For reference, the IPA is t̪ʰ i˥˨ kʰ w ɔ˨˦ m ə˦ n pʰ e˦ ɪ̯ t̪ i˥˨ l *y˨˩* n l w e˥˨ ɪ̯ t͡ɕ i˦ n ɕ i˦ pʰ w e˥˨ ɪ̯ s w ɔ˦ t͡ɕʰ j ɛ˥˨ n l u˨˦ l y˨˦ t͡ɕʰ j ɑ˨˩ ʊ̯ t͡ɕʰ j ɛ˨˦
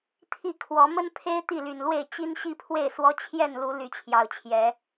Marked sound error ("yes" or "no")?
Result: no